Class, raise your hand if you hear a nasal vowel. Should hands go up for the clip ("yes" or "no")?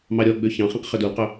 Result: yes